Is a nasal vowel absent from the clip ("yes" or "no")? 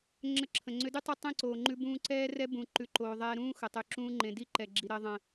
no